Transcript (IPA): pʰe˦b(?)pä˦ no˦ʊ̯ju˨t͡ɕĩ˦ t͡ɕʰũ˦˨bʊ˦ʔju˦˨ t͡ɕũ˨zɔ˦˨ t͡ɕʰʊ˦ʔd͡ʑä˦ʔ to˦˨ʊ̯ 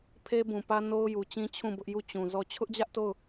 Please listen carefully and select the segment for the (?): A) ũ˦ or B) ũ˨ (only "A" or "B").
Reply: B